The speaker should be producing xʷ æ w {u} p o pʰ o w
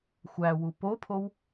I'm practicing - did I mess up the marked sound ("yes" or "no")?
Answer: no